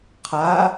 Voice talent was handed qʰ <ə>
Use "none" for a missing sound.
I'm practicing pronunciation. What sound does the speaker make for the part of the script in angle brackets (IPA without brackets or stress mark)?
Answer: a